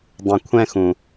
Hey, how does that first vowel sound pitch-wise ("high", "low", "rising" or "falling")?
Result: low